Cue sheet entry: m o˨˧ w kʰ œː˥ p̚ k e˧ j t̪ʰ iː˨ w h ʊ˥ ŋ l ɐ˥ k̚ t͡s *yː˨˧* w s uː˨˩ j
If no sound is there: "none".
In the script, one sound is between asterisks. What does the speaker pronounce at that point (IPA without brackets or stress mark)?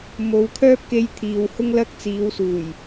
iː˨˧